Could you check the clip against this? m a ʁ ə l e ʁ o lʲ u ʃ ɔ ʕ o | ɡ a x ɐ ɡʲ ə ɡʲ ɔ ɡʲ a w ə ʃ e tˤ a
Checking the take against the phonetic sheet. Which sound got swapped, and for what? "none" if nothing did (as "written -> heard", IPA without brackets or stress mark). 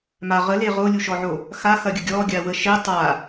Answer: ɡ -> x